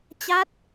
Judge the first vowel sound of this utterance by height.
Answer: low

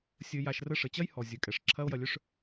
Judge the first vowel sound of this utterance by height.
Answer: mid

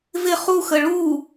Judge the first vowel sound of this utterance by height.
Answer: high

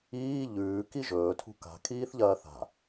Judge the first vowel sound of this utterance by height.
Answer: high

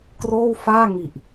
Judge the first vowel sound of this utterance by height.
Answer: mid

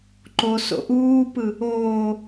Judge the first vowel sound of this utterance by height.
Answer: mid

